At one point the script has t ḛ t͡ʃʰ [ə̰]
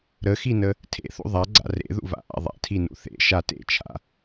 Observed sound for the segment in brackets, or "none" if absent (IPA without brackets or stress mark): a̰